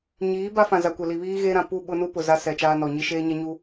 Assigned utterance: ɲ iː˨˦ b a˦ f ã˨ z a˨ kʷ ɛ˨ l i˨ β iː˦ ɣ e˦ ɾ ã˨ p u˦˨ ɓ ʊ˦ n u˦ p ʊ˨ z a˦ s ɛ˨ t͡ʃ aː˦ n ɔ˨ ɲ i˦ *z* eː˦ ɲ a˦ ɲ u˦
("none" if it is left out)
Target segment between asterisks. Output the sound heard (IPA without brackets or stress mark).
ʃ